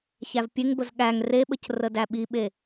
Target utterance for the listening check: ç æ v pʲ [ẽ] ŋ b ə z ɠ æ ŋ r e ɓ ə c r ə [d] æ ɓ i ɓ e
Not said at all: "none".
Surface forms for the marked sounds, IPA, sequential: e, d

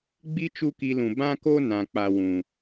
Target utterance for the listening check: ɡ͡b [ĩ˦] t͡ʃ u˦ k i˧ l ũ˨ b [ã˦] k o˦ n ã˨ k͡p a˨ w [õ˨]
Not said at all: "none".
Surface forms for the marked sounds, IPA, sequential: i˦, ã˦, ũ˨

